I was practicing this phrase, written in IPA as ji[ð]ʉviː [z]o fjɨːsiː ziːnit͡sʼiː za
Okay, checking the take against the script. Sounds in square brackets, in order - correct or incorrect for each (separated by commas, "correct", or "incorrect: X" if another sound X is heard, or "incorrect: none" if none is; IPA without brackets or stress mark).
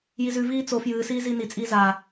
incorrect: z, incorrect: t͡s